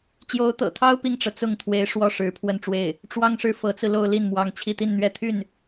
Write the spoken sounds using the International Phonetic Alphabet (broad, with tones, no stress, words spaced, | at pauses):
t͡ɕjo˧˥ʊ̯t̪ɤ̰˨˩t̪ʰɑ˥ʊ̯ pi˥˩ŋʈ͡ʂɤ˩ t͡sʊ˥˩ŋt̪ʰwe˧˥ɪ̯ ʂwɔ˥˩ʂɻ̩˧˥ pʰwə˥˧nʈ͡ʂwe˥˩ɪ̯ | ʈ͡ʂwɑ˥ŋʂɻ̩˧˥ fɤ˧˥t͡sɹ̩˧ lo˥˧ʊ̯li˥˩nmwɑ˧˥ŋ t͡ɕʰi˥˧t̪i˥˧nn̪ɥɛ˥˧ t̪ʰy˥˩n